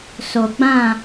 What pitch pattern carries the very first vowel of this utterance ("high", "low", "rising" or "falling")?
low